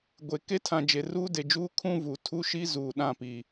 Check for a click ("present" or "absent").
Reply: absent